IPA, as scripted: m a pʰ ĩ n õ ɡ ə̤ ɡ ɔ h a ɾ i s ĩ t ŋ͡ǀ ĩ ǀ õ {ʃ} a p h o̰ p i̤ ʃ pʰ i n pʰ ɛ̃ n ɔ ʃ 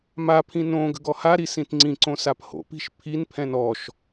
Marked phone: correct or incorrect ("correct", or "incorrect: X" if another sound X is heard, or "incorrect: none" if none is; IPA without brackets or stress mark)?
incorrect: s